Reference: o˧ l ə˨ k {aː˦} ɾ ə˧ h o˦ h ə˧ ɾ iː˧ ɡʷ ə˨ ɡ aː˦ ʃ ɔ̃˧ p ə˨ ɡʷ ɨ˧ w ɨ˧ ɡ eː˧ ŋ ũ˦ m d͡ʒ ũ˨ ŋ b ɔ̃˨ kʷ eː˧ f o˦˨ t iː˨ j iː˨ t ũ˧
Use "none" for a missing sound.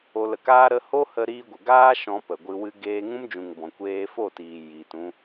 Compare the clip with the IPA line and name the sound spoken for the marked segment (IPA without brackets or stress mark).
aː˦